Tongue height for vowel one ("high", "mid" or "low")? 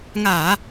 low